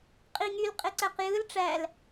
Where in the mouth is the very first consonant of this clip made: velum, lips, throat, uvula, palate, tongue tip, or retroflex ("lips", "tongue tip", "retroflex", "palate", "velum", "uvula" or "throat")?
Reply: uvula